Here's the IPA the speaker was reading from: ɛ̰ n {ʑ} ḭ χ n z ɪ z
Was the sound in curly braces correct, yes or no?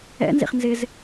no